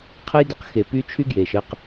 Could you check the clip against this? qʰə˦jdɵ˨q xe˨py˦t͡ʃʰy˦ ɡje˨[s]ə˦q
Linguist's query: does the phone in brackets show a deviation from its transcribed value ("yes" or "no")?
yes